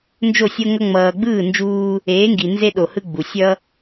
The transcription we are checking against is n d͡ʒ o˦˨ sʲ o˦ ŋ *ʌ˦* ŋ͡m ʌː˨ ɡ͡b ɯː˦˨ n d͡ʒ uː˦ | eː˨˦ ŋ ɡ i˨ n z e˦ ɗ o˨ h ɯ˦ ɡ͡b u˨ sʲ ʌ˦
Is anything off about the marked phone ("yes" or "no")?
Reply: no